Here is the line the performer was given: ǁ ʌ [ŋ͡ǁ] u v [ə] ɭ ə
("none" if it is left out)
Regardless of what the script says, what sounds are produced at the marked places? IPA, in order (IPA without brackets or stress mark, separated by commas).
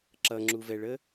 ŋ͡ǁ, ɛ